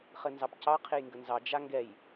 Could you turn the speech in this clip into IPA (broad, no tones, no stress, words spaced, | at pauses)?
χɘnzɑpcɑ qʰejŋɡənzɑ d͡ʒaŋɡɛj